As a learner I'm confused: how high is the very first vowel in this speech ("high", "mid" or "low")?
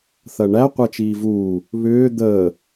low